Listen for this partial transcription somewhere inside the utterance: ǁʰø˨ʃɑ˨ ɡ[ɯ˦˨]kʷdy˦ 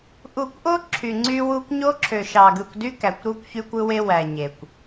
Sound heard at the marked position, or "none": ɯ˨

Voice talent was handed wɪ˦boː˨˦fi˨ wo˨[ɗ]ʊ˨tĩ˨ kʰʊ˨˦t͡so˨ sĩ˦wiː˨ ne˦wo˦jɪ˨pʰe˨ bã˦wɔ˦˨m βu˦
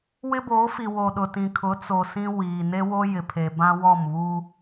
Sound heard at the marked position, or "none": ɗ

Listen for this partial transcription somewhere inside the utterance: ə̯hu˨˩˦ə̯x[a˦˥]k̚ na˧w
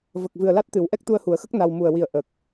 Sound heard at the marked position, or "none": ə˦˥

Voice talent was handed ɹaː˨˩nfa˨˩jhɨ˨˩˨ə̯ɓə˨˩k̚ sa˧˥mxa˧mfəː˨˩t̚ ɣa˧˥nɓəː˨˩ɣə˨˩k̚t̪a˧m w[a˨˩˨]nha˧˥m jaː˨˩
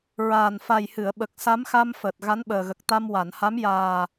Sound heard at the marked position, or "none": a˨˩˨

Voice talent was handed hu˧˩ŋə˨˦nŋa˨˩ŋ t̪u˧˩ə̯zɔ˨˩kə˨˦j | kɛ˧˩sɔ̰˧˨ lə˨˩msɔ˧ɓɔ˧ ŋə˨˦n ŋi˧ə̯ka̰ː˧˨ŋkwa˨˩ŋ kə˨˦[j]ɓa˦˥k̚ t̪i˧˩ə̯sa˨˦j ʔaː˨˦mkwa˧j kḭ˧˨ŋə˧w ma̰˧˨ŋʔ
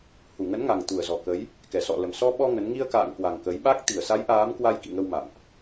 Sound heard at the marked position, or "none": j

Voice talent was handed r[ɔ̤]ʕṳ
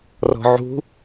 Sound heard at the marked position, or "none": ɔ̤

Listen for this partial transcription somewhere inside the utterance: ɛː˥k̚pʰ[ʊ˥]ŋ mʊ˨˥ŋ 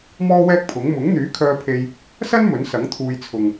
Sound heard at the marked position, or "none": ʊ˨˥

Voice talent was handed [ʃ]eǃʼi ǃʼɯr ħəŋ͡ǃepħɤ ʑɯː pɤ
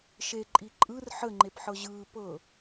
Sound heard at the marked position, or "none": ʃ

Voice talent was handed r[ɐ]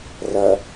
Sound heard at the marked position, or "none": ɐ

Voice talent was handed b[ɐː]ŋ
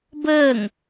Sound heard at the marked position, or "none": əː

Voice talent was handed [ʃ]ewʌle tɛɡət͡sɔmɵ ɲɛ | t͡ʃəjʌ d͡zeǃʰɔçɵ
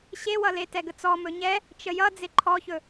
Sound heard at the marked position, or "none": ɕ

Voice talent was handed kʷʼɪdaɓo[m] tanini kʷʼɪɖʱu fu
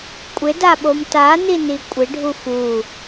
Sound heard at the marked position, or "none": m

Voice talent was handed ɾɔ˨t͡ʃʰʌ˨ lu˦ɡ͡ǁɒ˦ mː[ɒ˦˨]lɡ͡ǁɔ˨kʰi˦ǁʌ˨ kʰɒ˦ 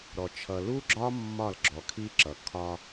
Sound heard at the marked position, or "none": ɒ˦˨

